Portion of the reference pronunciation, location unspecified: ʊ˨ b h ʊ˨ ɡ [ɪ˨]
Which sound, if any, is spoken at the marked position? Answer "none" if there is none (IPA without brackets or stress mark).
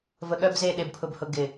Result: ɪ˨